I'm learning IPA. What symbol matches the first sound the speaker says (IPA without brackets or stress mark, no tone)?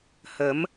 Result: h